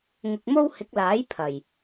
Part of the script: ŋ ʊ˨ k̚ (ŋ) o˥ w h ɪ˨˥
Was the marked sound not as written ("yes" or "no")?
yes